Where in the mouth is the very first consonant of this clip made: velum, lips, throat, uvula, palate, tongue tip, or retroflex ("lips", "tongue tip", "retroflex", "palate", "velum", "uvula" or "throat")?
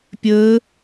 lips